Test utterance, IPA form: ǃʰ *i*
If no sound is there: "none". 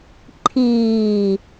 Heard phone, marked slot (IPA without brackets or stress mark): iː